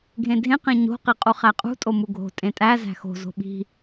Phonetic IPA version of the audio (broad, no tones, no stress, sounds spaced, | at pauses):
ɡʱ ẽ dʱ ẽ q ẽ ɲ o̤ q i qʼ u χ æ qʼ ṳ tʼ o m u ɡʱ o̤ tʼ ẽ tʼ æ z æ̤ x o̤ z o̤ ɓ i̤